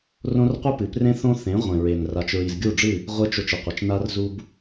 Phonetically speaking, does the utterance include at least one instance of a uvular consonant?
yes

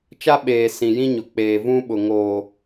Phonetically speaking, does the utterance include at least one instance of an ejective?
no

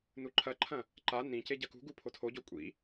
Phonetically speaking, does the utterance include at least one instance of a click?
yes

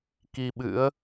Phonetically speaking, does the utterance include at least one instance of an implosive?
yes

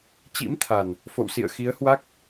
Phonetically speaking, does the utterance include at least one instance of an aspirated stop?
yes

